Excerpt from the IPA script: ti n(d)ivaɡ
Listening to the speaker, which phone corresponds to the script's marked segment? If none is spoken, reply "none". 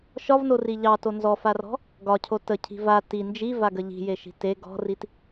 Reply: d͡ʒ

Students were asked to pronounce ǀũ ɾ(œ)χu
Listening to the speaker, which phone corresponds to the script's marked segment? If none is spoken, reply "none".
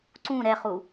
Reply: ɛ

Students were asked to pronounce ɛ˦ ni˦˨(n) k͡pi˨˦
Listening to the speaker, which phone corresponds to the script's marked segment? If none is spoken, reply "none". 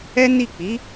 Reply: none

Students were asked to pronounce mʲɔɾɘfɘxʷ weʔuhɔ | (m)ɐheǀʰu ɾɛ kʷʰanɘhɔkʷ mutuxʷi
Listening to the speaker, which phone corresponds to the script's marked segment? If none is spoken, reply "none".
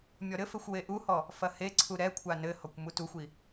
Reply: f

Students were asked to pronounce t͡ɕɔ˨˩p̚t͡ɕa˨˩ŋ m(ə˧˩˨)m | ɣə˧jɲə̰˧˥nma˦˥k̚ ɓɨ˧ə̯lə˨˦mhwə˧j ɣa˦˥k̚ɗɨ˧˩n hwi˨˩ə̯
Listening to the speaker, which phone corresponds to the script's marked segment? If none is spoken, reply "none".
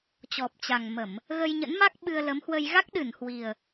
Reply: ə˧˩˨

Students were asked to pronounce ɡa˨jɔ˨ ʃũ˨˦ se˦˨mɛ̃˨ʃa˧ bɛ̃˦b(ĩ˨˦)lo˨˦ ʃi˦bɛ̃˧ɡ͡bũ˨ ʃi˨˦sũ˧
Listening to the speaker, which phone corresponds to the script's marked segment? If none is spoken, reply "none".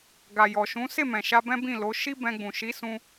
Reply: ĩ˦˨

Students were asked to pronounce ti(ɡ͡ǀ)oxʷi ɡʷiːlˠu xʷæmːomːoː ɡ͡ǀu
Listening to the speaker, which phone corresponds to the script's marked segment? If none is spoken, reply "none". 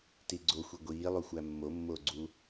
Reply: ɡ͡ǀ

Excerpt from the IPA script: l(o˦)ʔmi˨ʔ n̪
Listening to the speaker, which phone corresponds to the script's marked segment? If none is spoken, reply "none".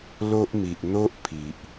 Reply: o˦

